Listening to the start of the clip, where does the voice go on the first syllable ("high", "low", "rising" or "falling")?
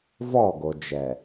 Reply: falling